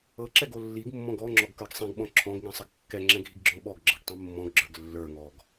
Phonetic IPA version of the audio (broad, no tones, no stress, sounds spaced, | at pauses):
ɤ ǁ ɛ ɡ o lː i ɡ mː ɔ̃ ɡ ɔ ŋ͡ǁ ɔ ɡ k ə˞ ɡ sˤ ĩ ɡ ɓ ɔ̃ ǁʰ ɔ̃ ɡ ŋ ĩ sˤ ə ɡ kː ɛ ŋ͡ǁ ɛ̃ ɡʱ i ɡ ɡ͡ǁ ɔ̃ ɓ ɔ ɡ ɡ͡ǁ ɤ ɡ tˤ ĩ mː ɔ̃ ɡ ɡ͡ǁ ə˞ ɡ lː ə˞ ŋ ɔ ɡ